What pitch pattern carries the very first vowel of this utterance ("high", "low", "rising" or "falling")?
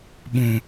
low